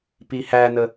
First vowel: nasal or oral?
oral